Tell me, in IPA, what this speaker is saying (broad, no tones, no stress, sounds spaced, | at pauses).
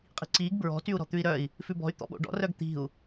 qʼ i̤ ǀ iː ɡ b ɹ ɔ̤ t y u̯ ɾ ɔ̤ t̪ ʉ i̯ ɾ œ i̯ | f ʉ b ɔ̤ y̯ t̪ ɔ̰ ɓ o̰ ɖ ɔ̰ r œ ɡ t̪ i̤ u̯